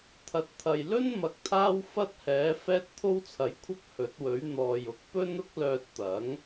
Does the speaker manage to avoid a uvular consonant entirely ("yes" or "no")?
yes